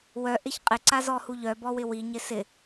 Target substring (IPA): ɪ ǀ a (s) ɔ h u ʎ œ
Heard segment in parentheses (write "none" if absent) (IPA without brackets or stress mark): z